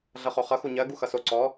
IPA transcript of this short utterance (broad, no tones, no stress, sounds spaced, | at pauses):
ɮ ʌ χ o χ ʌ x u ɲ ɜ ɡ u x ʌ s o ǀ ɔ